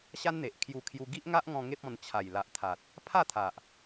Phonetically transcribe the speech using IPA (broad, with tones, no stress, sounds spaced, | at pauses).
ɕ a˦ n n̪ e˨ ʔ kʰ j u˧ kʰ j u˧ ɡ i˦ ʔ ŋ a˦ ʔ ŋ ɔ̃˧ ŋ e˦ p̚ ɔ̃˧ n t͡ɕʰ a˨˩ j l a˨ ʔ t̪ʰ a˨ t̚ | pʰ a˥˧ t̪ʰ a˨ ʔ